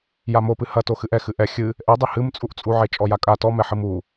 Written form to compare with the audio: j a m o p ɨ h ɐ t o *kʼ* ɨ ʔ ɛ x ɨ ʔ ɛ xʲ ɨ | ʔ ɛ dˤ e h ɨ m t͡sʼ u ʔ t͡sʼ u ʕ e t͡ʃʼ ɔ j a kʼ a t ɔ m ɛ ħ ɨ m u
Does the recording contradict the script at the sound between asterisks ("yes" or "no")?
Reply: yes